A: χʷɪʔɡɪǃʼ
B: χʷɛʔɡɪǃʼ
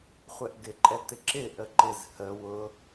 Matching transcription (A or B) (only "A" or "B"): B